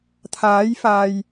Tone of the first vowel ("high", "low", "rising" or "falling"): rising